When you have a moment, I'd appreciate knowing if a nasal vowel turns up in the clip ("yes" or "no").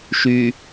no